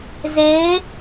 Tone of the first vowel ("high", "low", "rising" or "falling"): rising